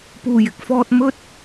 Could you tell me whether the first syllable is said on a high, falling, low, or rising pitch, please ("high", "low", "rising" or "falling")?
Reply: low